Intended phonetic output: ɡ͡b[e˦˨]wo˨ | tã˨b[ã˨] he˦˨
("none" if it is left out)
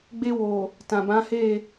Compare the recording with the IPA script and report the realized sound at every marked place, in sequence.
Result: e˧, ã˨˦

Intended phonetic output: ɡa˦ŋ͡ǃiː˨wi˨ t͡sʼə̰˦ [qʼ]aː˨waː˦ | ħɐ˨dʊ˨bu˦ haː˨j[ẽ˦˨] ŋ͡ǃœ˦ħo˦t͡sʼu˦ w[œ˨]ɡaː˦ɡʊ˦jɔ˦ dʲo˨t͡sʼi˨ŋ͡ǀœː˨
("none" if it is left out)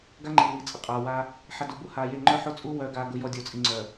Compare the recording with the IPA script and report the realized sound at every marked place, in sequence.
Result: qʼ, e˦˨, œ˦

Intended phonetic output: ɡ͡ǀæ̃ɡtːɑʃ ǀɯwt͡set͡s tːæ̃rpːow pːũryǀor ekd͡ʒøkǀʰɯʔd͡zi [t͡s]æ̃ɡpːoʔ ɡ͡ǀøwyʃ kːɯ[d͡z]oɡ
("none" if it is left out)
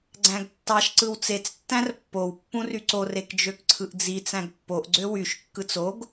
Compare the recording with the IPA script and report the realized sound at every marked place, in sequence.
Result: t͡s, t͡s

